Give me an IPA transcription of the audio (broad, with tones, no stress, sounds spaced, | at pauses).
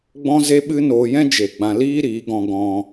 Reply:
ɡ͡b ɔ̃˦ z e˦ ɓ ɨ˦ n oː˧ j ɛ̃˦ d͡ʒ e˨ ɡ͡b ã˧ l iː˦ ɾ iː˨˦ ɡ ɔ̃˧ ɡ ɔ̃˧